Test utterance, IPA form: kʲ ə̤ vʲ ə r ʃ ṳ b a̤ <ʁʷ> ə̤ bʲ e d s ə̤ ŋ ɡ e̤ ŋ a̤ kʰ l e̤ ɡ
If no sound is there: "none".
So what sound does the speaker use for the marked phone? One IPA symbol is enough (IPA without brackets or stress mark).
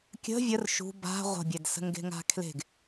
ʁʷ